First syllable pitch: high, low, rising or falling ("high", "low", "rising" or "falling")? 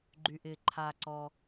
low